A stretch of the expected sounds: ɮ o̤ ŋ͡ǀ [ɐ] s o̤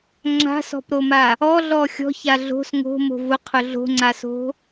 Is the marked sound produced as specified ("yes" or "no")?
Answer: no